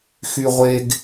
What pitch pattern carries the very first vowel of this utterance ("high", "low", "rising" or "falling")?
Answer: high